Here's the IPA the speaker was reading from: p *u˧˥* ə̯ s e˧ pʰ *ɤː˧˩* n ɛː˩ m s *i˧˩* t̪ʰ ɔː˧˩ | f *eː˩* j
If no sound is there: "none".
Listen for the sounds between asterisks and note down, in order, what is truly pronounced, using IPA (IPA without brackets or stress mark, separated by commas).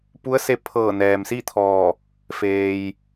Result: u˧˥, ɤː˧˩, i˥˨, eː˩